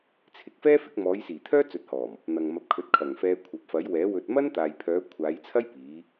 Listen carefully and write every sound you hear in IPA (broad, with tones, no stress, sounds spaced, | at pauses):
t͡sʰ ɪ˨˥ k̚ f ɛː˥ f ɪ˨˥ k̚ m ɔː˨˧ j s iː˨˩ t̪ʰ œː˥ t͡s ɵ˨˥ t̚ h ɔː˨˩ m | n̪ ɐ˨ ŋ m ɐ˨˥ p̚ kʰ ɵ˨˥ t̚ kʰ ɐ˨˩ ŋ f ɛː˧ kʷʰ ɐ˨ p̚ f ɐ˨˥ j w ɛː˨˥ w ɵ˨ t̚ m ɐ˥ n t̪ aː˨ j pʰ œː˨˧ kʷʰ aː˨˧ j t͡sʰ ɐ˥ j p iː˨˧